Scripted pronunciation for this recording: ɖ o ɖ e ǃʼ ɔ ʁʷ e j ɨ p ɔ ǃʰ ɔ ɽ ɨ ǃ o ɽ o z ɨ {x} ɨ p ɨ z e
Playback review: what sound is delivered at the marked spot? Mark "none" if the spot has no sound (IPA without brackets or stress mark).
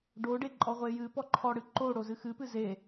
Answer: x